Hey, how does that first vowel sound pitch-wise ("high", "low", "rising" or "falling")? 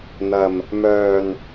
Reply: low